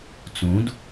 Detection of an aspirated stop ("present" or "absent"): absent